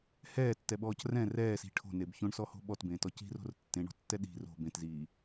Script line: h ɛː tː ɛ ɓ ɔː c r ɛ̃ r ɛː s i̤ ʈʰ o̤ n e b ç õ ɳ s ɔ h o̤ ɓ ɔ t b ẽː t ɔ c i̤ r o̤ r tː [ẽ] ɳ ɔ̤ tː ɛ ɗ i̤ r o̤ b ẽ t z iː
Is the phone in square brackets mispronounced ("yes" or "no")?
no